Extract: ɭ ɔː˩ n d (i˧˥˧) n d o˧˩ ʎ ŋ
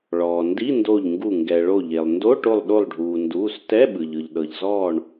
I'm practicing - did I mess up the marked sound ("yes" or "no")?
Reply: no